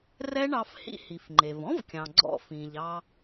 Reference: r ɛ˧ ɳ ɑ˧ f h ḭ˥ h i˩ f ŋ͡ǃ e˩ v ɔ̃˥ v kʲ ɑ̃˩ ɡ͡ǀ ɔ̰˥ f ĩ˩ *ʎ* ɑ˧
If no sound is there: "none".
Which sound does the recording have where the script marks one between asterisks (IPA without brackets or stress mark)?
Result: ʎ